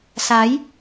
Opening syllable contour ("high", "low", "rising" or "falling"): rising